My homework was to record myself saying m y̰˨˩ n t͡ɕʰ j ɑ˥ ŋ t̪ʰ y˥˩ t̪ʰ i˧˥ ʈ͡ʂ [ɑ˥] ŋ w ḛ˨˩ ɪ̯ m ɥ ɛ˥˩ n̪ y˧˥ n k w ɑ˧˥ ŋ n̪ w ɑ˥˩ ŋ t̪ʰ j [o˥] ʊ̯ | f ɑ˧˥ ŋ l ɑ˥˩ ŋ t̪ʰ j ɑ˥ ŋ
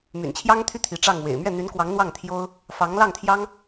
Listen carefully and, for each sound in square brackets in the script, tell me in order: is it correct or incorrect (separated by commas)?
incorrect, correct